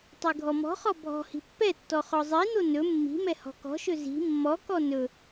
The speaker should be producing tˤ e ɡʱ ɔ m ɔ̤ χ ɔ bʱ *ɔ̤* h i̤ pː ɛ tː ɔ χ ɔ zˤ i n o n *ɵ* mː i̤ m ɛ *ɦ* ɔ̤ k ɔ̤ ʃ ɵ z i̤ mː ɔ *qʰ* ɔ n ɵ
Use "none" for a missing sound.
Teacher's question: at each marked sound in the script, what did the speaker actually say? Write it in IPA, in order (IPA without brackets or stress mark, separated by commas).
ɔ̤, ɵ, h, k